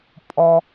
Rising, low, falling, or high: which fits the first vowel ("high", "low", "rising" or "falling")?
low